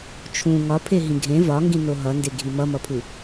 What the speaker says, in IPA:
t͡ʃʰ ũ ŋ ɒ pʰ e ɦ ĩ ɡʱ ẽ v ɒ ŋ ɡ ĩ n o ɦ ʌ n d e ɡʱ i m ʌ m ʌ pʰ u

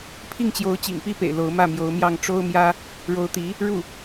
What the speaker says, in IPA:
pʰ i˥˩ ŋ t͡ɕ j o˧˥ ʊ̯ t͡ɕ ḭ˨˩ ŋ p i˥˩ p ḛ˨˩ ɪ̯ l o˧˥ ʊ̯ m ä˥˩ m j o˧˥ ʊ̯ m j ɑ˥˩ ŋ ʈ͡ʂ o˥ ʊ̯ m j ä˥ | ɻ o˧˥ ʊ̯ t̪ i˧˥ | ɻ u˥˩

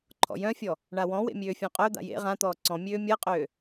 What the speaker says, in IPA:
ǃʰ ɔ̰ j œ̃ fʲ ɔ | ɳ a w ɔ̃ w ḛ mʲ øː fʲ ɔ̃ qʼ œ d̪ a̰ j ḛ ʁ ã t̪ ɔː ǀ ɔ̃ mʲ øː mʲ ɤ qʼ øː

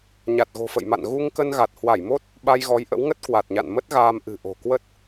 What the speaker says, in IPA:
ɲ a˨˩ t̚ ɣ o̤˨˩ f ə̰˧˨ j m a̰˧˨ n ɣ u˧ ŋ k ə˧ n ɣ a˨˩ t̚ h w a˧˩ j m o˦˥ t̚ | ɓ a˧ j ɣ ɔ˨˦ j ʔ ə̰˧˥ w ŋ ə˦˥ t̚ k w a˨˩ t̚ ɲ a̰˧˨ n m ə˦˥ t̚ ɣ aː˧ m ʔ ɨ̤˨˩ ʔ o̤˨˩ k w ə˦˥ t̚

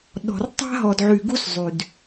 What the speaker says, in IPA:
ɗ ɔ̤˨ r tˤ a̤˦ ɦ ɔ˨ d ʕ y˨ ɡ u˦ s zˤ y˨ d

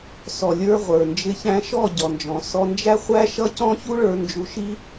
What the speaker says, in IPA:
s ɔ˨ lʲ ə˞˧ ʁʷ ə˞˨ n d͡ʒ ɪ˧ ç æ̃˧ ʃ ɔ˦˨ ɟ ɔ˧ n d͡ʒ ɔ̃˧ s ɔ˧ n d͡ʒ æ˦ χʷ æ˦ ʃ ʌ˦ c ɔ̃˦ ç u˦ ɭ ə˞˧ n d͡ʒ u˧ ʃ i˦

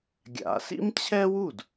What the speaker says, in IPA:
ɡʲ a̰˨˦ s ḭ˥ m t͡ɕʰ ɛ˥ w u˥˩ d

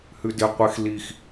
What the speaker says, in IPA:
h ʉ d ɪ qʷ ɪ x l i x

